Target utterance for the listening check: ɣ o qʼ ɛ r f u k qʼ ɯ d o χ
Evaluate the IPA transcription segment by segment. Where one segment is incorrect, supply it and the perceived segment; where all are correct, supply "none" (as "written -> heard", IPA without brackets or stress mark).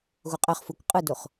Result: r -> χ